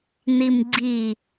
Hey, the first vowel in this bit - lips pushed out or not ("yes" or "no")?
no